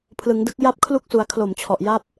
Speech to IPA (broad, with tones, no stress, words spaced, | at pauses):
pʰlɯ˩˦ŋdɯ˦˥k̚ ja˥˩p̚kʰlu˥˩k̚su˩˦a̯ kʰlo˨˩mt͡ɕʰɔ˨˩ʔ ja˥˩p̚